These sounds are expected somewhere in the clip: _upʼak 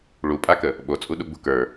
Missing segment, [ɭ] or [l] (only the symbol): ɭ